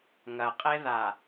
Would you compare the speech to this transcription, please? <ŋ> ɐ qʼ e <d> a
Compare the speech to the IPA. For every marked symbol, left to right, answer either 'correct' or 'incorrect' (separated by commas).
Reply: correct, incorrect